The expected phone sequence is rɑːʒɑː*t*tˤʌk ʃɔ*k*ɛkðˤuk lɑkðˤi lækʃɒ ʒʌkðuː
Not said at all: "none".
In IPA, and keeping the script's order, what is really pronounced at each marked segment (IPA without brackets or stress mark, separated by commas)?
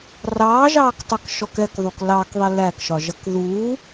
k, k